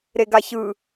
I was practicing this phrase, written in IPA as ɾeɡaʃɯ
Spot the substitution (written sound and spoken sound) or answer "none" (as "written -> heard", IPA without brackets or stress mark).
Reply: ʃ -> ç